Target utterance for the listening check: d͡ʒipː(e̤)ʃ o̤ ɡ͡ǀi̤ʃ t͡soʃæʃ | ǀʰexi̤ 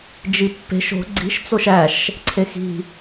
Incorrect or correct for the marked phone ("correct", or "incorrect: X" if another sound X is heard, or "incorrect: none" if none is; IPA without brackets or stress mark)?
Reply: correct